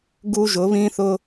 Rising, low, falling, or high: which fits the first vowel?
high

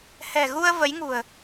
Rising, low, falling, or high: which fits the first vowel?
low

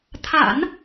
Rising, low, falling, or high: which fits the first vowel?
low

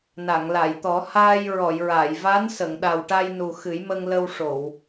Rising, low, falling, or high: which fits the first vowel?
low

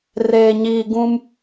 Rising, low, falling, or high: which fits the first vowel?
low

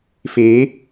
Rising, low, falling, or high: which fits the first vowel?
rising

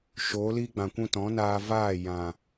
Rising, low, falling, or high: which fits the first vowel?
rising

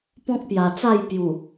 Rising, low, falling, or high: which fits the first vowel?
high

